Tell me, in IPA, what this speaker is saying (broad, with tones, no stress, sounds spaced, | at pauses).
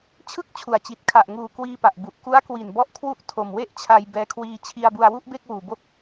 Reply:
t͡ɕʰ ɯ˥˩ k̚ t͡ɕʰ u˨˩ a̯ t͡ɕ i˨˩ t̚ kʰ a˨˩ ʔ ŋ uː˨˩ k w iː˧ p a˨˩ ʔ b u˨˩ ʔ k u˦˥ a̯ k w i˨˩ n b ɔ˦˥ ʔ kʰ w u˥˩ ʔ tʰ o˨˩ m w e˥˩ ʔ t͡ɕʰ a˧ j b ɛː˧ kʰ w iː˧ t͡ɕʰ i˧ a̯ b u˧ a̯ w u˥˩ ʔ b e˥˩ k̚ w uː˨˩ b o˥˩ k̚